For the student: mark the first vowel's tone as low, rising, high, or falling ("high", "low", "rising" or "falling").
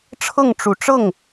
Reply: falling